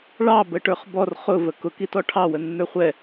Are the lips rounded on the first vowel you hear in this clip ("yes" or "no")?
no